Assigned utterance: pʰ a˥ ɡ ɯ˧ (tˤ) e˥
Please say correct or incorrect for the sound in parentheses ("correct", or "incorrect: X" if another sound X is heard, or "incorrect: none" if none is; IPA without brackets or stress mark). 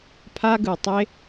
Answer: correct